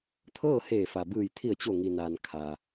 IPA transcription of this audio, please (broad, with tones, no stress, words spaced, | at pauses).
t̪ʰɤː˥˨heː˧˩fa˩bɯː˧˩j t̪ʰi˧˩ə̯t͡ɕo˧˩ŋi˩naː˩n kʰaː˩